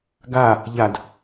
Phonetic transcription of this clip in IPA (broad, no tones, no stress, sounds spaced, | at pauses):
ɡ a | ʎ a d